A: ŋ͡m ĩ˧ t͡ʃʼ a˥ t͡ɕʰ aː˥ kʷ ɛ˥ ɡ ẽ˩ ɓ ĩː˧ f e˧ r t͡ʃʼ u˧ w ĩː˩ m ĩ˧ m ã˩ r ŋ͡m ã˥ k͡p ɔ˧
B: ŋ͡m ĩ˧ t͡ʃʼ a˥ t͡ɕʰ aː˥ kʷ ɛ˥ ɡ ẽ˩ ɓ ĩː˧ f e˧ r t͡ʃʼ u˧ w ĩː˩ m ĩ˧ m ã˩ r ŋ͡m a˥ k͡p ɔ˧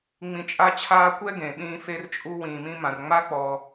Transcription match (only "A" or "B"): B